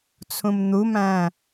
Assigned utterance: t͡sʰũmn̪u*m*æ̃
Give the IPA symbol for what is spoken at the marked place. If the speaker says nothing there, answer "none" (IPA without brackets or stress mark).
m